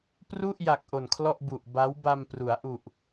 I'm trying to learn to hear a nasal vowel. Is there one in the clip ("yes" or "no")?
no